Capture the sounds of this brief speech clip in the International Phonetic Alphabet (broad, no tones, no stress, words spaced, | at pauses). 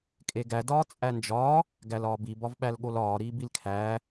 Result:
kʼeɡæ dɒːt͡sʼænd͡ʒɒː | ɡælɒːbi bɒvɓælɠolɒː ɾiːbilkʰæː